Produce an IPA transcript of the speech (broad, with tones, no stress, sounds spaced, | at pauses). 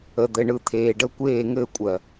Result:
ə˨ d̪ ɘ˨ ɳ ɯ˧ t̪ʰ eː˨ ɖ ə˧ kʷ eː˦˨ ŋ ɘ˦˨ kʷʼ ɜ˨